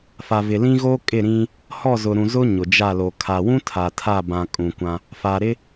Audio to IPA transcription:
f a˨ v ɪ˨ l ĩ˦ ɣ o˦ kʼ ɪ˦˨ ɾ ĩ˦ | h ɔ˦˨ z ʊ˨ ɾ ũ˨ z ʊ˦ ɲ ʊ˨ d͡ʒ a˦˨ l o˨ kʰ a˨ w ũ˦ tʰ a˨ tʰ a˦˨ b ã˨ kʼ ũ˨ kʷ ã˦ | f a˨ ɾ ɪ˦

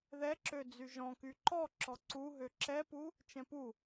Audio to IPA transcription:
ð ɛ ǁ ø d͡z y ʒ ɔ̃ k y ǃ ɔ ǁ ɔ ǀ u ɦ ø ǁ ɛ p u | t͡ʃ ɛ̃ p u

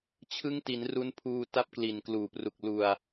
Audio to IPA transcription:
t͡ɕʰ ɯ˦˥ ŋ t i˩˦ n r u˦˥ n pʰ uː˧ t a˦˥ p̚ k l i˨˩ n k l uː˨˩ p r u˨˩ k̚ l u˨˩ a̯

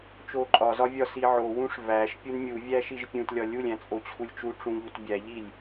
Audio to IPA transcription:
t͡ʃ o ǃʼ ɒ z ɒ vʲ ɒ s i ʕ o w ũ ʂ v æ ʃ pʲ u n mʲ u vʲ æ ʃ i ʒ pʲ ũ t lʲ ɒ lʲ u lʲ æ̃ t͡sʼ o t͡ɕʰ u lʲ t͡ʃ u ʈ͡ʂ ũ ʎ u t bʲ æ ʎ i lʲ

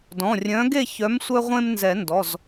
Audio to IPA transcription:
d ɔ̃˩˧˩ rʲ œ̃˨˥ ɡ e˥˨ ç œ˨˥ m sʷ œ˦ ʁʷ ẽ˦ m n z ɛ˨˩˦ n d ɔ˩˧˩ z

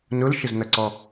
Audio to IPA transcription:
n ʊ l ʃ ə z n ʌ ǀ ɔ

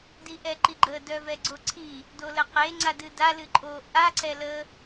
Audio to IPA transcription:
d i ʔ ɛ ǃ i ɡ͡ǃ ə d œ v ɛ ɡ͡ǀ o ǀʰ i | d o l ə q e ŋ͡ǀ a d ɨ d a l ɨ ǃʼ o ʔ a ǀ ɛ l ə

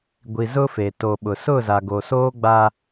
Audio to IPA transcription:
ɡʷ i˨ z ʊ˦ f e˨ t o˨ ɓ ʊ˨ s ʊ˦˨ z a˨ ɡ o˨ s oː˦ ɡ͡b a˦

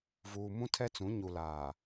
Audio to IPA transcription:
v uː˨ m ũ˦ tʰ ɛ˦ t͡s ũ˨˦ ɲ u˨ l aː˨

